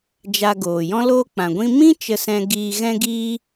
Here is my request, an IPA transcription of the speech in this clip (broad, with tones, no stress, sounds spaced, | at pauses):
d͡ʒ a˧ ɡ oː˨ j ɔ̃˦ l oː˦ k͡p ã˨ ɡʷ ĩ˧ m ĩ˦ t͡ʃ ə˧ s ɛ̃˧ ɡ iː˧ ɣ ɛ̃˦ ɡ iː˦